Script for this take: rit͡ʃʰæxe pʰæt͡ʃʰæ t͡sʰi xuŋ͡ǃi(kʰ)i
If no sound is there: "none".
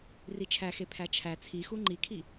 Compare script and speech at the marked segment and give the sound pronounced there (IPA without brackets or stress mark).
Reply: kʰ